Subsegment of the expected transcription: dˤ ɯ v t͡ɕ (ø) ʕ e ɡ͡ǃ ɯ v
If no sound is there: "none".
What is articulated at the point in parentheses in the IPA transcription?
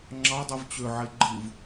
ø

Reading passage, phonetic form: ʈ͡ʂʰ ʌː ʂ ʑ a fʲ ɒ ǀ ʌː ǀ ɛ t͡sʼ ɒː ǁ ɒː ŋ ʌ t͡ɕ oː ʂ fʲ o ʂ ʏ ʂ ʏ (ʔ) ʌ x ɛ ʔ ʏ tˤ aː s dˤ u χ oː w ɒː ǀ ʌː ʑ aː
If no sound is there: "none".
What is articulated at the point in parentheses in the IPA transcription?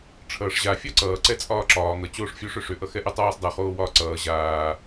ʔ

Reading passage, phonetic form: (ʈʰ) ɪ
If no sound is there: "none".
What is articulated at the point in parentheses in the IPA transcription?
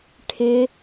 ʈʰ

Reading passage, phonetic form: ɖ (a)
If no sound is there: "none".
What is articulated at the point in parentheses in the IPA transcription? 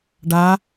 a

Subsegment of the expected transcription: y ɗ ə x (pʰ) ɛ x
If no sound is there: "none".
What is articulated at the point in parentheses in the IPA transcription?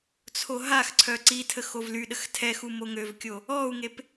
tʰ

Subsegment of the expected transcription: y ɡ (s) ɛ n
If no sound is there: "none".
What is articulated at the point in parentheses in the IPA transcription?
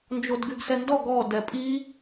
s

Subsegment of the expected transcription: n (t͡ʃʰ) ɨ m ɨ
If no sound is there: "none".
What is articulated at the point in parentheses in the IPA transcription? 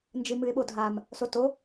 d͡ʒ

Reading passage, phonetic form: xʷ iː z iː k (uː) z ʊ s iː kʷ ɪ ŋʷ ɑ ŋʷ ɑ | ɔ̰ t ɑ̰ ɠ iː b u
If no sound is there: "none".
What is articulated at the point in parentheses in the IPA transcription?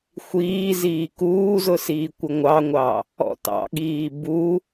uː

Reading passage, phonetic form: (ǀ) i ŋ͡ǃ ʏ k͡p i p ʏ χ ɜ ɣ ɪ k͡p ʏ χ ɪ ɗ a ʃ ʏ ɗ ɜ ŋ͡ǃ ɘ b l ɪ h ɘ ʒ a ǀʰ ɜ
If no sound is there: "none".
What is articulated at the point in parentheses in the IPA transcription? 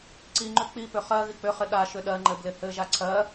ǀ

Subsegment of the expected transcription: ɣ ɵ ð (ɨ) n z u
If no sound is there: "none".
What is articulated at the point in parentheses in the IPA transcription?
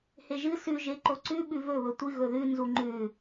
ʉ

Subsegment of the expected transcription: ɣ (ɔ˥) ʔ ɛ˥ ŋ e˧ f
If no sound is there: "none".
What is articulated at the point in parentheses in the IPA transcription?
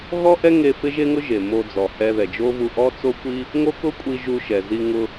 ɔ˥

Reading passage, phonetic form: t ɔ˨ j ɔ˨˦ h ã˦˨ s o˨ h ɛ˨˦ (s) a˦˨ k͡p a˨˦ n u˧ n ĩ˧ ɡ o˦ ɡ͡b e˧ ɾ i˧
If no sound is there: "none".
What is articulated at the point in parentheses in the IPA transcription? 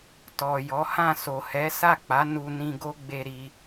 s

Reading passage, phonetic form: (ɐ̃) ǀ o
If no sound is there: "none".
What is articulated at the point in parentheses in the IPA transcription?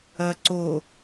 ɐ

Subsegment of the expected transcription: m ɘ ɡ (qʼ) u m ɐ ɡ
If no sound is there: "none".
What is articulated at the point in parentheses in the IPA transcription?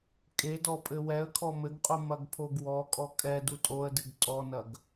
qʼ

